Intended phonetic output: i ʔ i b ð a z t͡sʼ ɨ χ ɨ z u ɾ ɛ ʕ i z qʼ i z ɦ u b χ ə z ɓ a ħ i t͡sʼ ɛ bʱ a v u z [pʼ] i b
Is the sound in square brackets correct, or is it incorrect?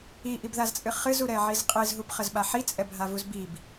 incorrect